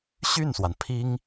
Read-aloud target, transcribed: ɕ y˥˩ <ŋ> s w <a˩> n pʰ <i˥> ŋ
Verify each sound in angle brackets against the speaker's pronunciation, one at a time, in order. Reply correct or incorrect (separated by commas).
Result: incorrect, correct, correct